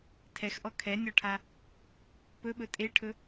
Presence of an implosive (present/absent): present